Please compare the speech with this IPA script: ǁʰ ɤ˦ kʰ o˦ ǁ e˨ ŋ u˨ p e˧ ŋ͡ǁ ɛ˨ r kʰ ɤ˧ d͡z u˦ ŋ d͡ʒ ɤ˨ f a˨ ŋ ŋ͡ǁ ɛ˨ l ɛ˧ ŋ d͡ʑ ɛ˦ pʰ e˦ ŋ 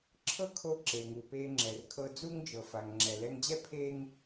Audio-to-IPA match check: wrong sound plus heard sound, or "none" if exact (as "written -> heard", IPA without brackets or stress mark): o˦ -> o˧